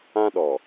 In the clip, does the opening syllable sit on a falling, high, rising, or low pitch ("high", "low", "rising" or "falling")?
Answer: high